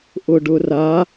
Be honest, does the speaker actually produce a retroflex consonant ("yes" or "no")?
yes